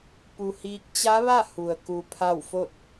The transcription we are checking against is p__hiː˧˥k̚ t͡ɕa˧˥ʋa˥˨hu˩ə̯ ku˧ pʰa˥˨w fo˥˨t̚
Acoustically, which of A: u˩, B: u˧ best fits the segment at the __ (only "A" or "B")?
B